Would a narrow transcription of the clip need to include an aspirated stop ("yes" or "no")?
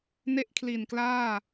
yes